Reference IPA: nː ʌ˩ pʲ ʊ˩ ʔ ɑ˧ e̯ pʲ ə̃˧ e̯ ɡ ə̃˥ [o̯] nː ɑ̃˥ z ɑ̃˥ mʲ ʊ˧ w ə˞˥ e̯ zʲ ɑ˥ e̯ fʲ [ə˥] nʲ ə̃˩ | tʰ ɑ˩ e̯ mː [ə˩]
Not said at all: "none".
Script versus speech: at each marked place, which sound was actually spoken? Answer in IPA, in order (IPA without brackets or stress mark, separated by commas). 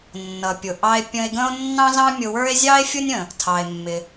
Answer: o̯, ʊ˥, ɪ˩